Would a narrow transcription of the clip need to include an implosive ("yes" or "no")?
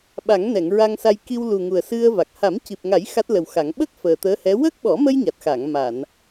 yes